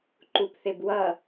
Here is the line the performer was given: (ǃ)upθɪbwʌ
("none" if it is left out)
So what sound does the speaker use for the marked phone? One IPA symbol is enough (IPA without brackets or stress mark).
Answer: ǃ